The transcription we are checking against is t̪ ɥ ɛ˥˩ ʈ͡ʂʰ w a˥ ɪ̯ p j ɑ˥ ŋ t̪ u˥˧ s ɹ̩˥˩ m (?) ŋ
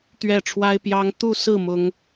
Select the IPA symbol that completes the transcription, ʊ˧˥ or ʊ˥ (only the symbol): ʊ˥